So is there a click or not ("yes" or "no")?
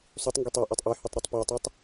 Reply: no